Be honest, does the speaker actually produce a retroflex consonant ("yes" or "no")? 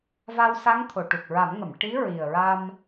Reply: yes